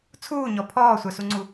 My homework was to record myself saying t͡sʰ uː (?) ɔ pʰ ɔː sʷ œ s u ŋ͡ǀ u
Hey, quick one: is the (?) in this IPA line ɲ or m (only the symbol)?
ɲ